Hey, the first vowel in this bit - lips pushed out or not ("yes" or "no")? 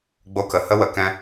yes